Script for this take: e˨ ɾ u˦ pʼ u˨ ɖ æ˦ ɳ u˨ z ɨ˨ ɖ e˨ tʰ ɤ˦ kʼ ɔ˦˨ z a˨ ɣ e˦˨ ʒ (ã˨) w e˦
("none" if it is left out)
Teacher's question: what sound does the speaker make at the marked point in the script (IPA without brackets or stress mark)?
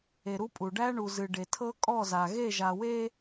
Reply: a˨